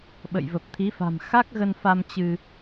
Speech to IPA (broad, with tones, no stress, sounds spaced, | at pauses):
ɓ ə̰˧˨ j v ə˨˩ p̚ t̪ʰ i˨˦ f a̤˨˩ m x a˦˥ k̚ ɣ ə˧ n f a˧ m t͡ɕ ɨ˧